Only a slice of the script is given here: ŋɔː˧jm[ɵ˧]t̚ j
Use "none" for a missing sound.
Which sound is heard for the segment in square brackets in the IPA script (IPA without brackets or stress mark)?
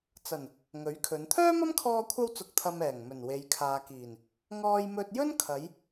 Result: ɵ˧